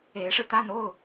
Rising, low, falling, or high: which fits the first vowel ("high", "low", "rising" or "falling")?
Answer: rising